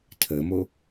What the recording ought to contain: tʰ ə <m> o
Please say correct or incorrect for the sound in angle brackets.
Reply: correct